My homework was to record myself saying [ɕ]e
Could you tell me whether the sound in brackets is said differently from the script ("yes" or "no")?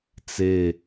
yes